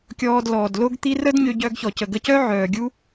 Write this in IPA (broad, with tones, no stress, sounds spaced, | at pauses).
kʲ ɔː˧ d l ɔː˩ d l o˥ ɡ t̪ i˥ r ə˥ d ɲ ø˧ ɟ œ˧ ɡ ç ɔ˩ c ə˩ ɡ ə˧ c œ˥ ʕ œː˩ ɡʲ u˥